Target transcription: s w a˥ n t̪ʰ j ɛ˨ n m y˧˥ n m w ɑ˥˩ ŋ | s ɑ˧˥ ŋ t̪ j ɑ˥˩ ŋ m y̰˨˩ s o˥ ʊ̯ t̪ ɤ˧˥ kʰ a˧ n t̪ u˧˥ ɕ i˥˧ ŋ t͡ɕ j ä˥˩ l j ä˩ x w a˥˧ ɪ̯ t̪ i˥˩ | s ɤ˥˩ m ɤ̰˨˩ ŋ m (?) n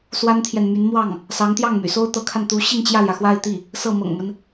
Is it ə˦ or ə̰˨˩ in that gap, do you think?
ə˦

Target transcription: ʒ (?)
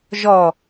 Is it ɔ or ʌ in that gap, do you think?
ɔ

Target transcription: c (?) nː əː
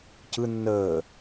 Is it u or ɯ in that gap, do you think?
ɯ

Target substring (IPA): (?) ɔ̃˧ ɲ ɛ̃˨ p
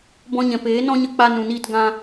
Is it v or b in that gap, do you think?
b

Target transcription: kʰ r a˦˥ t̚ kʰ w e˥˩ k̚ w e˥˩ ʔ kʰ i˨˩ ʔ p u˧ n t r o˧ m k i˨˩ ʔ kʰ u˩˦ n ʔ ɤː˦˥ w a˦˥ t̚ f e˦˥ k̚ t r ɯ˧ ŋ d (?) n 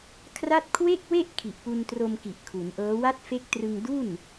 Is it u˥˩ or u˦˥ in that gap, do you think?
u˥˩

